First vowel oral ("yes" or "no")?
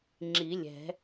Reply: yes